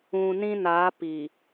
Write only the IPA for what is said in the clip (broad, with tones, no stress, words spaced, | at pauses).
ũ˨ nĩ˦na˨˦ pi˨